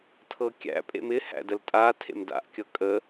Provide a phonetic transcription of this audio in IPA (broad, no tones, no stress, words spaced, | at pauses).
tʰɤkʲæ̰ pʼḛmɪ hæ̰dəltʼa tʰḛmda̰ʔ kʲɤkʼə